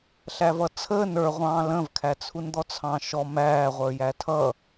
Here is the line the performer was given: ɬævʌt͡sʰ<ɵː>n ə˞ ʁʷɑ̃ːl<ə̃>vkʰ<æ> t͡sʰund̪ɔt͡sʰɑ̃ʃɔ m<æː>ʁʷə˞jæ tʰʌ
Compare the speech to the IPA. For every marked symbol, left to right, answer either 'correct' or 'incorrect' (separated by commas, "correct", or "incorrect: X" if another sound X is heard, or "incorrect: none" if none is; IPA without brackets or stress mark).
incorrect: əː, correct, correct, correct